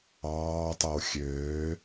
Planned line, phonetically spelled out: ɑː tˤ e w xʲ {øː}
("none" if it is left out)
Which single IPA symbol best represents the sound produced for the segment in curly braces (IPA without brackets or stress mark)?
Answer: øː